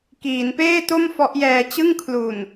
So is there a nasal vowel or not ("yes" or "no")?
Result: no